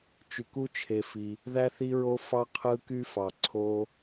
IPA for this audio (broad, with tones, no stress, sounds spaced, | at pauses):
t͡ʃ y˧ k u˦ t͡ʃʰ e˧ f i˧ | ð æ˦ θ i˦ ɹ o˦ f ɑ˦ qʰ ɯ˦ k y˦ f ɑ˧ ǀʰ o˦